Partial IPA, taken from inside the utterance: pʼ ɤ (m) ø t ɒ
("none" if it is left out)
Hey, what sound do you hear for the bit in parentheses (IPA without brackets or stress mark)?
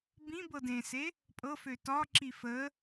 f